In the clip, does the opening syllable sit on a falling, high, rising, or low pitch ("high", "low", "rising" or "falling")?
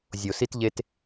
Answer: low